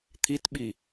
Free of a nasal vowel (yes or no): yes